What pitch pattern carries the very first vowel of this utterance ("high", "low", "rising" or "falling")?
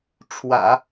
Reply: low